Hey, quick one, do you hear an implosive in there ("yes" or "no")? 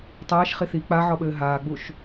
yes